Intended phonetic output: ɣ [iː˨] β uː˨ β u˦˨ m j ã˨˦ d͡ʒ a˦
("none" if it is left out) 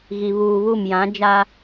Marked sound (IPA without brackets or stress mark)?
i˨